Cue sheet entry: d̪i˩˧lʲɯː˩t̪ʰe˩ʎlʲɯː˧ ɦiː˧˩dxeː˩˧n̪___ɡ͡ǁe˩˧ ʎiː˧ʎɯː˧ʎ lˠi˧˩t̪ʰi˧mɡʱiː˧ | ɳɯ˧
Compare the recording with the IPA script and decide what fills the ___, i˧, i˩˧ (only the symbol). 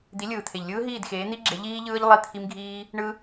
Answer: i˧